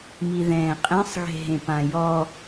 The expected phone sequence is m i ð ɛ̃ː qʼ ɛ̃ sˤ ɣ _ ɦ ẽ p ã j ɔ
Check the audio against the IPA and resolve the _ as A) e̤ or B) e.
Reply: A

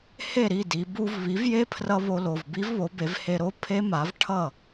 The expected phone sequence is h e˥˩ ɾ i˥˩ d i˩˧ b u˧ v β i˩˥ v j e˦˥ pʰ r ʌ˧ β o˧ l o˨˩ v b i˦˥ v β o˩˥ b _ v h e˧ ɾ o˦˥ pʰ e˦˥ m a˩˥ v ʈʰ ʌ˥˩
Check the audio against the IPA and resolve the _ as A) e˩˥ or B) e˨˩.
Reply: A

